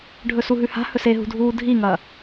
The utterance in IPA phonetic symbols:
ɖʱɵsuɦʉha̤ hɵseɦṳdʱuː dʱiŋɐ

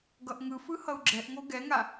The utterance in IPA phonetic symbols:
ɡʌʔŋɯ fɯhʌu̯ɡ͡ǁɛʔŋo ɡɛŋa

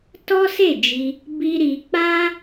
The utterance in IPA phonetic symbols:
tɔ˦se˦˨d͡ʒi˧ | bi˦ ɾi˧k͡pa˦

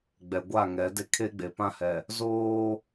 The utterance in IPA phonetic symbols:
ɡ͡bɛ˨ɡʷa˦˨ ŋɛ˨˦de˦ kʰe˦ɡ͡be˨pã˦hɛ˨ | zoː˦

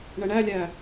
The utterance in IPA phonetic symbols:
ɳəɳælʲæ

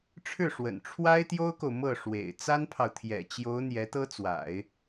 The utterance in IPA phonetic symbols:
ʈ͡ʂʰɻ̩˥˩ʂwə̰˨˩n ʈ͡ʂʰwa˥ɪ̯t̪jo˥ʊ̯ko˨ʊ̯ mɤ˥˩ʂwḛ˨˩ɪ̯ t͡sa˥npʰɑ˨ʊ̯t̪ʰjɛ̰˨˩t͡ɕjo˧˥ʊ̯ n̪jɛ˧˥t̪ɤ˥t͡swa̰˨˩˦ɪ̯

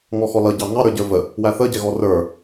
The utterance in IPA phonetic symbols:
ŋɔxɔlʌɟɑ ŋɑɾə˞ ɟə˞və | wæθəɟɛɣɔ rə˞

